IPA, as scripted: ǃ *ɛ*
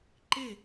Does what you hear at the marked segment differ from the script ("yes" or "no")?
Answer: yes